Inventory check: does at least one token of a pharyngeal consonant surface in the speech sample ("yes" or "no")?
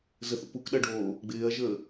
no